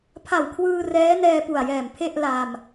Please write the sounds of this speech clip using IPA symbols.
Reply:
pʰa˨˩wkʰwɯː˧ rɛː˦˥nɛː˧pu˨˩a̯jɛː˨˩m pʰe˥˩ʔla˧m

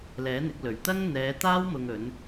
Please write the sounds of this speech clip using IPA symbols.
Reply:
lɛː˨˥n̪ɪ˨˥k̚lɵ˨˩ɥ t̪ɐ˥ŋn̪ɛː˨˧t̪aː˥w mʊ˧ŋɵ˨˥n

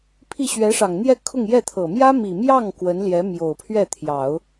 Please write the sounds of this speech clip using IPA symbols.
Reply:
pʰi˥˩ɕɥɛ˧˥ʂɑ˨˩ŋ n̪jɛ˥˧ kʰʊ˥˧ŋjɛ˥˩t̪ʰɤ˨˩ mjä˥mi˨˩mjɑ˥˩ŋ kwə˧˥nljɛ˧˥ mjo˨˩ʊ̯pʰɥɛ˥˩t̪ʰjɑ˨˩˦ʊ̯

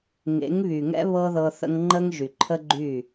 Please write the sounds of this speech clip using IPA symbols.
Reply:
ŋḛ˨˦ŋβy˨ŋɛ̰˦ βɤ˦ðɤ˧ θə̰˧ŋ ŋ͡ǃə˦ŋ ʒy˨ǃʰə˦ɡ͡ǃy˦˨

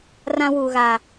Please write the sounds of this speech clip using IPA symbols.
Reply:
rã˦wuː˨ ɣa˨

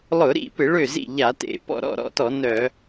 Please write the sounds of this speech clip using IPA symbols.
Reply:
lˠʊ˧˩˧ɾḭ˥˩pɪ˧˩˧ ɭø˥˩zḭ˥˩ ʎa˧˩˧tḛ˧˩˧pɔ̰˥˩ ɾɔ̰˥˩ɾɔ̰˥˩tɔ˧˩˧ nœ˧˩˧

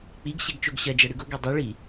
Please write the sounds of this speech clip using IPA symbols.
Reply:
k͡piɡɕeɡt͡ʃoɡ ɕɐd͡ʒɐɽɨɡ oɡe dˤɛɭi

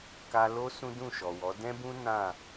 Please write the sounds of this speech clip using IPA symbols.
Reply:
ka˧lo˦ sũ˦dũ˦˨ʃɔ˨wɔ˨˦ dɛ̃˦bũ˦ nã˦˨

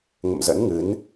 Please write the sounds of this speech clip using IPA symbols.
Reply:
ŋə̰˧˨mzə̰˧˥nŋɨ˨˦n

